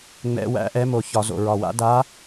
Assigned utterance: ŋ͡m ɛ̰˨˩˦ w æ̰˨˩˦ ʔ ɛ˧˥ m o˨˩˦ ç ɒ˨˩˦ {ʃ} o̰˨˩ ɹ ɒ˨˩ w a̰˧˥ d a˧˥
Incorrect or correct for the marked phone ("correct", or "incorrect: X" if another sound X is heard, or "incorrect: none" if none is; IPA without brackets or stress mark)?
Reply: incorrect: z